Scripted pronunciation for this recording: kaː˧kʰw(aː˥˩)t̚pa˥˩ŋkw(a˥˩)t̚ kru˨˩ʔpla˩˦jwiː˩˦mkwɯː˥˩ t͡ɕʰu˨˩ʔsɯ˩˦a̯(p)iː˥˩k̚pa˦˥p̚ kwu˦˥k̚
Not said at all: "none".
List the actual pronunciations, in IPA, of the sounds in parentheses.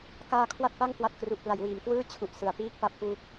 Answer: a˥˩, a˨˩, p

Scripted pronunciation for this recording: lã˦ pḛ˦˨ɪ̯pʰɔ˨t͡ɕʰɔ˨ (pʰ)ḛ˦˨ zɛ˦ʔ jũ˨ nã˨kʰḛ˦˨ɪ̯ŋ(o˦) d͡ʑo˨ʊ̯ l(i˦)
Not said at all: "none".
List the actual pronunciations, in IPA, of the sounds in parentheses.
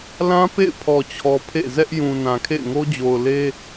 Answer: pʰ, o˦, e˦

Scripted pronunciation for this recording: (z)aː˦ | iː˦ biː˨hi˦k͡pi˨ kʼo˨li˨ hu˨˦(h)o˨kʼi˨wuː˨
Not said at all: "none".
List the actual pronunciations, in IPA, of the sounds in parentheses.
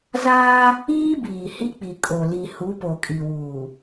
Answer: z, p

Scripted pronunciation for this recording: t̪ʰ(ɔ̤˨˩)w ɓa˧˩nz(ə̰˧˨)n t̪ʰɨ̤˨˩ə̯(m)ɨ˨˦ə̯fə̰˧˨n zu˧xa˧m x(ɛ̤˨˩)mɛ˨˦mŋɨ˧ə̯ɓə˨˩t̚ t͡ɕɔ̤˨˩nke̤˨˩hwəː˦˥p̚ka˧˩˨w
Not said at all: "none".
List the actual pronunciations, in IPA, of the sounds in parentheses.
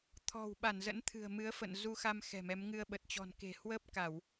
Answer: ɔ̤˨˩, ə̰˧˥, m, ɛ̤˨˩

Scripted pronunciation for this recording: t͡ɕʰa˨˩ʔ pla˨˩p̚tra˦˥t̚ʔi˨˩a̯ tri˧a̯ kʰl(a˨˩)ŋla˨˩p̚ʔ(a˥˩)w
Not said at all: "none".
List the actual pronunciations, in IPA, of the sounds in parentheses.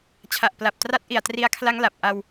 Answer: a˦˥, a˧

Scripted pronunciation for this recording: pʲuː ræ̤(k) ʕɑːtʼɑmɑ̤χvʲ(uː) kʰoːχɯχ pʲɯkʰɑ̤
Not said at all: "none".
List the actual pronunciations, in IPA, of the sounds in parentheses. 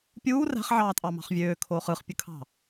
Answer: χ, øː

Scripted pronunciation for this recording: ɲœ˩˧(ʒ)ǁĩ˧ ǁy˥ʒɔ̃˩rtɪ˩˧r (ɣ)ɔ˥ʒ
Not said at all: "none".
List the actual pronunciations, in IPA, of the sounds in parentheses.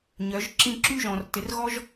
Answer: ʒ, ɣ

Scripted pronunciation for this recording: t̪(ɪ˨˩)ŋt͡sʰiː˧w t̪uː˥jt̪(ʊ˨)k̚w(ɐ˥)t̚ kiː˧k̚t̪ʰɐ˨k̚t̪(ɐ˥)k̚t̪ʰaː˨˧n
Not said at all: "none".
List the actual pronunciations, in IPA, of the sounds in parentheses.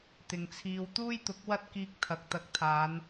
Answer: ɪ˨, ʊ˨˥, ɐ˥, ɐ˨˥

